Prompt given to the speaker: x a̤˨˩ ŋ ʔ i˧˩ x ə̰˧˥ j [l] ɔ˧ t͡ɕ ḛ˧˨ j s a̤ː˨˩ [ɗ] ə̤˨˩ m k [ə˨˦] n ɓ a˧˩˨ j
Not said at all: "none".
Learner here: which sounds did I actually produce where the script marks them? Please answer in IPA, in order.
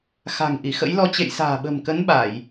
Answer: l, ɓ, ə˨˦

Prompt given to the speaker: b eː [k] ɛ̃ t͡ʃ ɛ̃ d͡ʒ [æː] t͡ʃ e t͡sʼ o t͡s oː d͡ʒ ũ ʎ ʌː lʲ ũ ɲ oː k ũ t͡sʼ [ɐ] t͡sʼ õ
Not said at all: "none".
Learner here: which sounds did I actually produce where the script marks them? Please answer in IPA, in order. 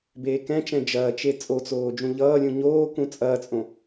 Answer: k, ɐː, ɐː

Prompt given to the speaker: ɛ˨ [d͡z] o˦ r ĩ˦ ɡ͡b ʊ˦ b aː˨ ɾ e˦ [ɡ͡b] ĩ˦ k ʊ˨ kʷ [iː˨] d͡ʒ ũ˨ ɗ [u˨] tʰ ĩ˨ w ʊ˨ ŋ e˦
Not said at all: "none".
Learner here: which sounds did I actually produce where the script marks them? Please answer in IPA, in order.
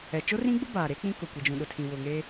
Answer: t͡ʃ, k͡p, i˨, ʊ˨

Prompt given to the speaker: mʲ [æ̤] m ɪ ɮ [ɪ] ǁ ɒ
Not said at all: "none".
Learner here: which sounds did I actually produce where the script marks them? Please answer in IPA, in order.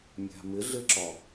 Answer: æ̤, ɪ

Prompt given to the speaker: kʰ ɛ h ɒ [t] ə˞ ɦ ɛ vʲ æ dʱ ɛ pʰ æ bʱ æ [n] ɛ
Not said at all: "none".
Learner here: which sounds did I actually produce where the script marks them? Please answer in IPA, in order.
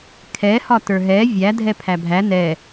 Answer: t, n

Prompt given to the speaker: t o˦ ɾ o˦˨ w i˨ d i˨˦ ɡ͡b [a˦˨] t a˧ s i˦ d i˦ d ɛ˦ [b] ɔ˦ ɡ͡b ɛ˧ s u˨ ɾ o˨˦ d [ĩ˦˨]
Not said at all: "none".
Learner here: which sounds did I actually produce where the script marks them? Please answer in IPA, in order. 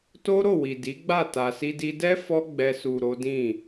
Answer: a˦˨, f, ĩ˦˨

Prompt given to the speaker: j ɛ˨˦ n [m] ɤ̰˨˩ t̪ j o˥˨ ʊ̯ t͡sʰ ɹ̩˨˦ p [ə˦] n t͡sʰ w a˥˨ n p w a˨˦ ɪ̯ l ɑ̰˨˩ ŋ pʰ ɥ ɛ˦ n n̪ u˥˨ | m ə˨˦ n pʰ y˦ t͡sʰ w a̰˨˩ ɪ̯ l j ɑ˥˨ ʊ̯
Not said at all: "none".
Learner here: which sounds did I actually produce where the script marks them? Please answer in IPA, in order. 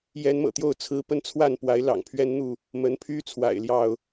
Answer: m, ə˦

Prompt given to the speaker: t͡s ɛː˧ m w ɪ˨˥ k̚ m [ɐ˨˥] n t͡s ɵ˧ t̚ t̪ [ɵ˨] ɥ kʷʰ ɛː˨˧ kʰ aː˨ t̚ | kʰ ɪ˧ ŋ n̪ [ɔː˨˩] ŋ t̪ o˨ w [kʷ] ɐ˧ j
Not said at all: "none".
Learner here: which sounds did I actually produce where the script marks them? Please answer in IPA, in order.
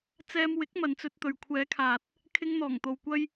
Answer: ɐ˨˧, ɵ˨, ɔː˨˩, kʷ

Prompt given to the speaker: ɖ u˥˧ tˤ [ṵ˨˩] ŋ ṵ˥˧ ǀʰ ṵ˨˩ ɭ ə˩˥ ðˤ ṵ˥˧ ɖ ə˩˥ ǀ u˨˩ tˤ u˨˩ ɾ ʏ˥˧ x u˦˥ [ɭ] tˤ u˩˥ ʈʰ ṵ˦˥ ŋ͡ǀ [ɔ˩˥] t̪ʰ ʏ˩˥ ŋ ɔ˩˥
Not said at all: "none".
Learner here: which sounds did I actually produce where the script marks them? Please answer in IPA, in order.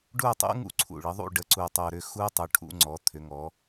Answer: ṵ˦˥, none, ɔ˩˥

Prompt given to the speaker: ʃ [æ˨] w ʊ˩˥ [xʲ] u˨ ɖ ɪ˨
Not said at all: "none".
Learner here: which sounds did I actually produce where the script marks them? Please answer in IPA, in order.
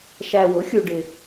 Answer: æ˨, xʲ

